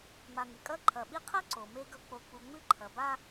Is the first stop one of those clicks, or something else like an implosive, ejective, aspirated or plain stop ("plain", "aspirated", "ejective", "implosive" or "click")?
ejective